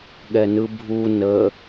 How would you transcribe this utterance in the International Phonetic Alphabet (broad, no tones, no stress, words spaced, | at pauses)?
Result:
ɠɛnɯbʱu nə